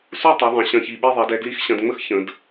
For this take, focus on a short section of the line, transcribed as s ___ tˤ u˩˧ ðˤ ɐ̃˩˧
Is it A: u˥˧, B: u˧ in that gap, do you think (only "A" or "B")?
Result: A